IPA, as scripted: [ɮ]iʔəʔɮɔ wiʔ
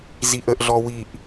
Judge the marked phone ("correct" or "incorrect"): incorrect